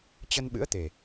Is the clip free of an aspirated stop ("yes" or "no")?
yes